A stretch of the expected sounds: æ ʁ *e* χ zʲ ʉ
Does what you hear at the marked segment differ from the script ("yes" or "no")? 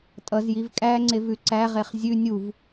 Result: no